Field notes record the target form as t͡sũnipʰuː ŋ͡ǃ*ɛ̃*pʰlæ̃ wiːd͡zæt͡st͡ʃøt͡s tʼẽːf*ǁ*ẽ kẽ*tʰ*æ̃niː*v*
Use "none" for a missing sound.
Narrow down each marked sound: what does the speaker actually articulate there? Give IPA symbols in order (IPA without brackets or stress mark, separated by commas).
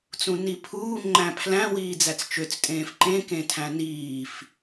æ̃, ǃ, tʰ, f